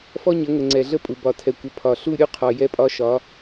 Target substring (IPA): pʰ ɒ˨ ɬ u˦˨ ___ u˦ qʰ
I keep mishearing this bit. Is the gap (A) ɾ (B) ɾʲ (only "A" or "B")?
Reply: B